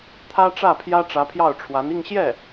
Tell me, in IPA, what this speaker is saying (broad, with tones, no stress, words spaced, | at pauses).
t̪ʰä˥ ʈ͡ʂä˥˩pʰjä˥ ʈ͡ʂä˧˥pʰjɑ˥˩ʊ̯ʈ͡ʂʰwa˧˥n i˥˧ŋɕjɛ˥˩